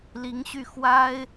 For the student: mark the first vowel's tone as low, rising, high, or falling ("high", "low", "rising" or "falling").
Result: rising